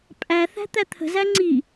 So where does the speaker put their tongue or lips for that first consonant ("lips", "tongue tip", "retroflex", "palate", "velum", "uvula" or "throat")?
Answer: lips